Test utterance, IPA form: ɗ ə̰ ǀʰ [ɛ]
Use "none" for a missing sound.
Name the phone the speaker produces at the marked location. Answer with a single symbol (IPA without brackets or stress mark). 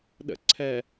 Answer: ɛ